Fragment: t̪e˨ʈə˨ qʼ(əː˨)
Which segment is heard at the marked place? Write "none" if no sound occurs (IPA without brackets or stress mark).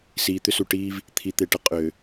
ʏː˨